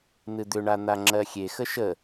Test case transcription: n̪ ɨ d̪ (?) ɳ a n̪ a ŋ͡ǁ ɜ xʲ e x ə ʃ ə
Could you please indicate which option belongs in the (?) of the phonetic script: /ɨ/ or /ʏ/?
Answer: ʏ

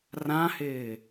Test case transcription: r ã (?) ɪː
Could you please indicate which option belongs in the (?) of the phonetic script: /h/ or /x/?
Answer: h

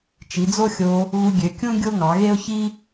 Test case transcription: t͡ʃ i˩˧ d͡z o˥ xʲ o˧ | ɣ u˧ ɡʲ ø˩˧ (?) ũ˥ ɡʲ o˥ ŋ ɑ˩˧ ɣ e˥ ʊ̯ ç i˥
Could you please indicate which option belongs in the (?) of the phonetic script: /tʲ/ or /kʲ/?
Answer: kʲ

